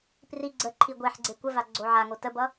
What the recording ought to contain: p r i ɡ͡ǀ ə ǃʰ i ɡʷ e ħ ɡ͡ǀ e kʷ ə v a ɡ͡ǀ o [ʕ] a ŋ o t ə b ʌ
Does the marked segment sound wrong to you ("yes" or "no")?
no